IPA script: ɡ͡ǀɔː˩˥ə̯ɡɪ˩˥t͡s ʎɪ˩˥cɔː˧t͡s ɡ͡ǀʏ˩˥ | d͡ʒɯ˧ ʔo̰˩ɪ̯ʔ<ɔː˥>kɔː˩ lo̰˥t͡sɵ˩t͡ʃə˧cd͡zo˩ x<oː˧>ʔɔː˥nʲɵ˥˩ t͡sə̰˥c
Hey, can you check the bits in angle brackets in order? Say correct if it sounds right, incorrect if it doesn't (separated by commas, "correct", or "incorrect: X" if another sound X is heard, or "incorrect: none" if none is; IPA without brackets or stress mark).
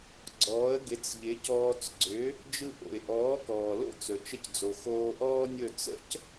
incorrect: ɔː˩˥, correct